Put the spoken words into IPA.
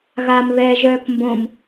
ɣ a m β ɛ ʒ œː k m b õ m

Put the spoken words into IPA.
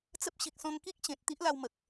t͡s ə˦ p̚ ɕ i˨ k̚ s ɔ̃˧ ŋ k i˦ k̚ ɕ ẽ˨ t̚ t̪ i˦ ʔ l a˧ w m ə˨ k̚

